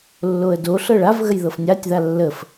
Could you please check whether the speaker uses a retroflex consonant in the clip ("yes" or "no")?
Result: yes